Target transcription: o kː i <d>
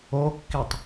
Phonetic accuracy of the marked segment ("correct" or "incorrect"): incorrect